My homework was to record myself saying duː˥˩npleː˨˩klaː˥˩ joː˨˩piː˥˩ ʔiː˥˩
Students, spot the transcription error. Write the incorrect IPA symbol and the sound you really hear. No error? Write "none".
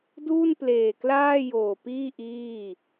none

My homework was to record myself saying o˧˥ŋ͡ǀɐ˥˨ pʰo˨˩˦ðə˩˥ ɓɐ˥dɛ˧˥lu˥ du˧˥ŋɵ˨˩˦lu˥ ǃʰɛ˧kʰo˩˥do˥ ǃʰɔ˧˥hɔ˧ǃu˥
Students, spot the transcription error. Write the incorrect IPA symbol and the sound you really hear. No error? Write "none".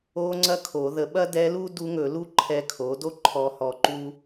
pʰ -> kʰ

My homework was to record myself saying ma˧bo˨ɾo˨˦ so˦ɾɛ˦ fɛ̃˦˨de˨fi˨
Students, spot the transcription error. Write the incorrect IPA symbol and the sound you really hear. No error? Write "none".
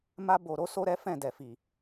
e˨ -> ɛ˨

